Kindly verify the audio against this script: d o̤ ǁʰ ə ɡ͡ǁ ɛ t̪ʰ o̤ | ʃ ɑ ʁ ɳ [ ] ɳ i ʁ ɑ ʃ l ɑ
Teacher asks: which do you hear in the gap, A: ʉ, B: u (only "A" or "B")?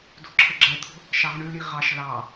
A